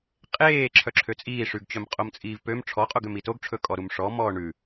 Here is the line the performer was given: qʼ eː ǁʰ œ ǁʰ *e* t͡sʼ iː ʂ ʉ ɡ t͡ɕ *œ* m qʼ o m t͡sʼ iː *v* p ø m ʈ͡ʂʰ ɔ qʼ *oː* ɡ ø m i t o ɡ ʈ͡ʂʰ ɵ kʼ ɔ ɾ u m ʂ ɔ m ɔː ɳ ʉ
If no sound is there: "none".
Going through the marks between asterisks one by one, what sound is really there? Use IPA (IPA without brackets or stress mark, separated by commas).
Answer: ø, œ, v, o